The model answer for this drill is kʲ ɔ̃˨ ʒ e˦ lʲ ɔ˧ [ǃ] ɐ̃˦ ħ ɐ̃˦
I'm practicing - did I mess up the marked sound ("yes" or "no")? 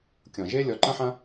no